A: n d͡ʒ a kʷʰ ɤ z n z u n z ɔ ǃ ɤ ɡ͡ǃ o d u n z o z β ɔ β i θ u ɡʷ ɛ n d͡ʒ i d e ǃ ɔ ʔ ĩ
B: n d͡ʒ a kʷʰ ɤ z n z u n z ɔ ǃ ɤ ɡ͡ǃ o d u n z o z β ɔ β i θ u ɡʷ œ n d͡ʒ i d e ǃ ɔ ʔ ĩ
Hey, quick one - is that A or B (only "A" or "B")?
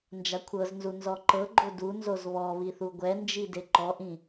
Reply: A